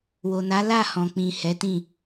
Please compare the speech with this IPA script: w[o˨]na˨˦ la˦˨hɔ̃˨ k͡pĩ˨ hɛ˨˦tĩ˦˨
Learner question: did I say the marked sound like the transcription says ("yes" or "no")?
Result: yes